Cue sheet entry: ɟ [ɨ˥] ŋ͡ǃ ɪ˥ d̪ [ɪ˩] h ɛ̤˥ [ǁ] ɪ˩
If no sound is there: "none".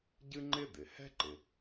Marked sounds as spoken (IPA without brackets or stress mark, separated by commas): ɨ˥, ɪ˩, ǃ